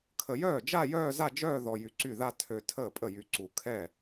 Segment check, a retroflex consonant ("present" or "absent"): absent